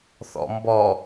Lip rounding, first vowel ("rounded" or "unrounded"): rounded